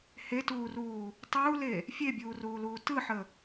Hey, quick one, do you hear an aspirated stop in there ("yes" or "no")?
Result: no